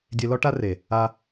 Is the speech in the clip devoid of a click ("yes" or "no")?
yes